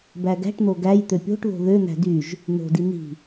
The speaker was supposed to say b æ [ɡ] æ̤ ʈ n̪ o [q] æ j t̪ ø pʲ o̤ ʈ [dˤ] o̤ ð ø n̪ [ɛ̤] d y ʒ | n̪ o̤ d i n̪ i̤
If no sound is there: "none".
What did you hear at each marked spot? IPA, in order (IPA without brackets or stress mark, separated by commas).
ɡ, ɡ, ð, æ̤